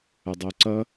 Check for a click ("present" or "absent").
present